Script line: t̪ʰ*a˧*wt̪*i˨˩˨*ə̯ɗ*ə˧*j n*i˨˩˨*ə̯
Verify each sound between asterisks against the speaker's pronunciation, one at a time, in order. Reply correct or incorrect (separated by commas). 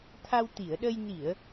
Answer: correct, correct, correct, correct